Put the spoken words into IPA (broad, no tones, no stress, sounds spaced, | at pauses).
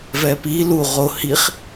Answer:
v ɛ p i l u ʁ o h i χ